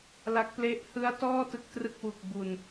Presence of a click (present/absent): absent